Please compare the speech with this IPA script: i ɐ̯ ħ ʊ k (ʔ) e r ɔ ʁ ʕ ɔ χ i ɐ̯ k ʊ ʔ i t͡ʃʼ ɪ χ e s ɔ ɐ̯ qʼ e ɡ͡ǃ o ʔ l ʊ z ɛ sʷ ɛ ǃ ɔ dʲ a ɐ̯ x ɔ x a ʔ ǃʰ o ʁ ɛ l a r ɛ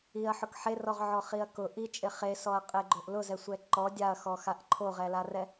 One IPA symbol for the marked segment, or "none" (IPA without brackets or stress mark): ħ